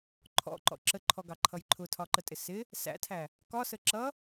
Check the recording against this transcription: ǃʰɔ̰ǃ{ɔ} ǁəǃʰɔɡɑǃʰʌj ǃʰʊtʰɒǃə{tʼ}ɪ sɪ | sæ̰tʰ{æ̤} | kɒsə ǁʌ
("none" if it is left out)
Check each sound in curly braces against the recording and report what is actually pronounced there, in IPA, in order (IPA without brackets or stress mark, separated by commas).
ɔ̰, tʼ, æ